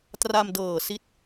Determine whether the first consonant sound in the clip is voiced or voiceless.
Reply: voiceless